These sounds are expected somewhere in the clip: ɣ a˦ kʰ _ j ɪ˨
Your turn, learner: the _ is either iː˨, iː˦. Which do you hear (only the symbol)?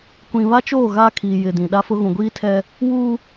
iː˨